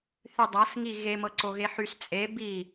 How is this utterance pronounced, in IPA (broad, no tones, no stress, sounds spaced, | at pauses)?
θ y dˤ a s ŋ i ɣ e m ɤ ǀ o ɣ e ħ y s t͡sʼ e b i